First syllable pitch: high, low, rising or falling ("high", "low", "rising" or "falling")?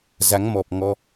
rising